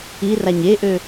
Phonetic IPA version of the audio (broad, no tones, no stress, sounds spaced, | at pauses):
i r a ɲ e ʔ ø